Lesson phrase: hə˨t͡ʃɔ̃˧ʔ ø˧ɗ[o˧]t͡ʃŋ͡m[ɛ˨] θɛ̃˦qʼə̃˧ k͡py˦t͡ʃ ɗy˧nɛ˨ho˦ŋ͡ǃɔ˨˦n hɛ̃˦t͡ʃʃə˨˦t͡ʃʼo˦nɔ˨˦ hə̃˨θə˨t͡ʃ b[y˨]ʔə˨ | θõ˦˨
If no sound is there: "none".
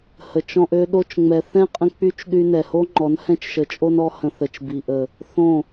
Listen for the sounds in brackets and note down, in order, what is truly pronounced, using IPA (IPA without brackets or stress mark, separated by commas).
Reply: o˧, ɛ˨, i˨